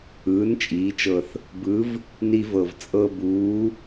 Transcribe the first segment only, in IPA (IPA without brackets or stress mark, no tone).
ɯː